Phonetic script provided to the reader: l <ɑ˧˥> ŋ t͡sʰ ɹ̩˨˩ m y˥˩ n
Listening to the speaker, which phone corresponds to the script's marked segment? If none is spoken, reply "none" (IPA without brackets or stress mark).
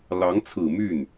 ɑ˧˥